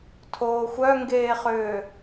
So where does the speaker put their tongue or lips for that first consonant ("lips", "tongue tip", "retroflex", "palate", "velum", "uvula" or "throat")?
tongue tip